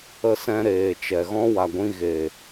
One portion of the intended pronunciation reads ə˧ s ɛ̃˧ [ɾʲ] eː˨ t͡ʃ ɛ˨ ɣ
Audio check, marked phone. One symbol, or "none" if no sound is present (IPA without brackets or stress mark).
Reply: ɾ